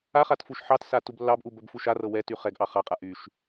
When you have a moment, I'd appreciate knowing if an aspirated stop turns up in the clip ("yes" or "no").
no